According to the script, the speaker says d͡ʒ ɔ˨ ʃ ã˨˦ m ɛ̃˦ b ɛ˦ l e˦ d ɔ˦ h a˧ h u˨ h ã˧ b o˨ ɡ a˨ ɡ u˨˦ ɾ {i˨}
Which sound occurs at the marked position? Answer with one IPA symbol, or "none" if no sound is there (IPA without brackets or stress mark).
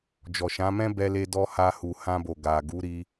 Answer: i˧